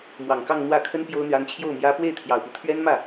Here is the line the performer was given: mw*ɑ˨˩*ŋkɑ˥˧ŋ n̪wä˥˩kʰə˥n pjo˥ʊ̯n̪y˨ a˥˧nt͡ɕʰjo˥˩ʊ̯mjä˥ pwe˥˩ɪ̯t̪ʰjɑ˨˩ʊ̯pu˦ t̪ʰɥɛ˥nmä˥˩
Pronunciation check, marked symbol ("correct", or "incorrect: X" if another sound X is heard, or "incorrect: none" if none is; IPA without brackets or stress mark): correct